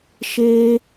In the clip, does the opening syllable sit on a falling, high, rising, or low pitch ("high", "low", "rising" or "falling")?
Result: high